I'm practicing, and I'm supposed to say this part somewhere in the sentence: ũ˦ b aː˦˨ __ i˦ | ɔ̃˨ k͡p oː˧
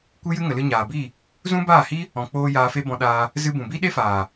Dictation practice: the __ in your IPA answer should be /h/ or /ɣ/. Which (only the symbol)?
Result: h